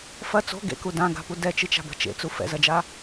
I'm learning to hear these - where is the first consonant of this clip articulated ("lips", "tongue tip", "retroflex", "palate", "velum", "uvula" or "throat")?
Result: lips